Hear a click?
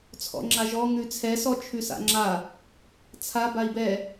yes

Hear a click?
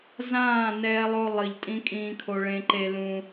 yes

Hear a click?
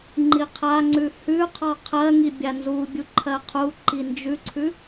yes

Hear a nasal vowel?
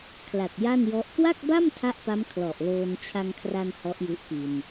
no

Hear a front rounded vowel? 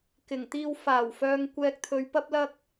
yes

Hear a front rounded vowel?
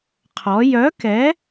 yes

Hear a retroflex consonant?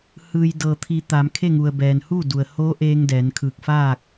no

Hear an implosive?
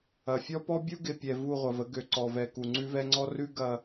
no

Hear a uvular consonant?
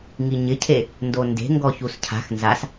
no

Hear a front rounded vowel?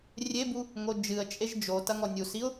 no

